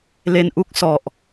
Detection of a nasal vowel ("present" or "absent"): absent